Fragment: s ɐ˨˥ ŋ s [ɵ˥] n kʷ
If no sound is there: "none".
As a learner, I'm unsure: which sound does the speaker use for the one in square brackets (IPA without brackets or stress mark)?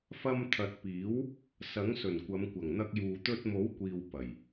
ɵ˨˩